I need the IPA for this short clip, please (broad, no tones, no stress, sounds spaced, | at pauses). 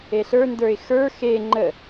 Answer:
e ɬ ə˞ n d ə˞ ɪ̯ x ə˞ x e ŋ͡ǃ ə